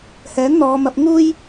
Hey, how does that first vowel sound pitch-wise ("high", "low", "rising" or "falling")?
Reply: rising